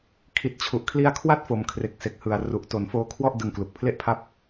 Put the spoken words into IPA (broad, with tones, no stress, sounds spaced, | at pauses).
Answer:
kʰ i˨˩ t̚ t͡ɕʰ u˨˩ ʔ kʰ l i˦˥ a̯ kʰ w a˥˩ t̚ f o˨˩ m kʰ r e˨˩ k̚ s e˨˩ k̚ h ɯ˨˩ a̯ r u˨˩ ʔ t o˨˩ n f oː˦˥ kʰ w ɔ˥˩ ʔ d ɯ˧ ŋ k l u˨˩ k̚ pʰ l e˥˩ ʔ pʰ a˥˩ p̚